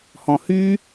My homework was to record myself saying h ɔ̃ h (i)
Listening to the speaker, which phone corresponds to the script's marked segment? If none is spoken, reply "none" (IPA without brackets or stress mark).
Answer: y